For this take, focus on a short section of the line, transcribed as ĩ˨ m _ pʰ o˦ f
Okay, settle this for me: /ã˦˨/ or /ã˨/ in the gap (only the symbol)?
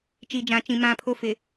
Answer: ã˦˨